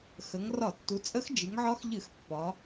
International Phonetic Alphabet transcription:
x ə˩˧ ŋ r ɒ˧˩˧ tː u˩˧ t͡sʼ ə˧˥ x d͡ʒ ɨ˩˧ ŋ ʕ ɒ˧˥ x ʎ ɨ˧˩˧ x pː ɒ˩˧

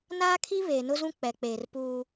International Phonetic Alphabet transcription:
n aː˦ kʰ i˦ β eː˨ n ʊ˦ z ũ˦ k͡p ɛ˨ k͡p eː˨ r p uː˦

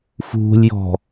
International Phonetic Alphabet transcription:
f ṳ lʲ j ɔ̤

